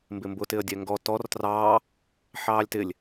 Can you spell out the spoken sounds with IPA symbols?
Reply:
m b ɪ m b ʊ t ɪ ə̯ dʲ ɛ ŋ ɡ ɔ t ɔ r t r ɑː | ħ ɑː lʲ t ɪ lʲ

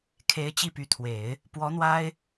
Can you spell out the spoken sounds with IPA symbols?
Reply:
kʰ e˧˥ ɪ̯ t͡ɕ i˥˩ p y˧˥ t̪ʰ w e˨˩˦ ɪ̯ | p w ɔ˧˥ n̪ w a˥ ɪ̯

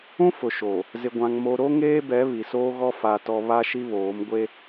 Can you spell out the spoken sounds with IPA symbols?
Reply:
ũ˦ f ʊ˨ ʃ o˨ | z ɪ˨ ɡʷ ã˨ ŋ m o˨ ɾ o˦ ŋ eː˦ b ɛ˨˦ β i˨ s oː˦ ɣ ɔ˦ f a˦ t ɔ˦ β a˦ ʃ i˦ β oː˨˦ m ɡʷ e˦

